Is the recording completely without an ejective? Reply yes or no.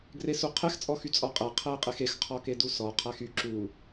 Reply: no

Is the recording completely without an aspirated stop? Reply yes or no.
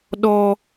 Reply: yes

